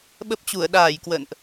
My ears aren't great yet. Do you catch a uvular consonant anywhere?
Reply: no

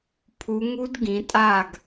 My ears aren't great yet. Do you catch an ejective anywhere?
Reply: yes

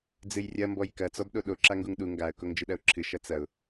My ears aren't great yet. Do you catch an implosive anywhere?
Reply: yes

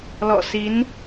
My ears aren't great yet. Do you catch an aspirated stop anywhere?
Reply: no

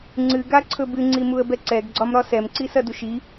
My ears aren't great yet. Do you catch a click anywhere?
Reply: yes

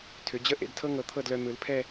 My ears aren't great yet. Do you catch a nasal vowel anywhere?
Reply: no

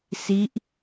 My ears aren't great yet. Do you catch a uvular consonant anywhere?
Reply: no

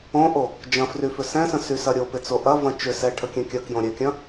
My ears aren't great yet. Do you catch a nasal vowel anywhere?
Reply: yes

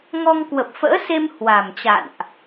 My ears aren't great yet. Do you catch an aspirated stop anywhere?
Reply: no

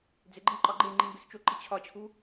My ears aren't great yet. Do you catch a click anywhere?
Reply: yes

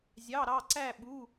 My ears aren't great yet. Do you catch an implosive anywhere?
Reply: yes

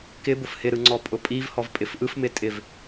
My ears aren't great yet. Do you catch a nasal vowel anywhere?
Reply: no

